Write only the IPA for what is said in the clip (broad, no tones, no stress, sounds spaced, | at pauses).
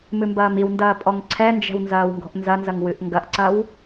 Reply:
m ɨ m b ɐː m i w n d ɐː pʼ ɔ ŋ ǀʰ ɛ n d͡ʒ ɛ̤ w n z ɐː w ŋ ɡ ɔ̤ ʔ n z ɐ n z ɐ ŋ w ɨ ʔ ŋ ɡ ɐ ʔ ǀ ɐ w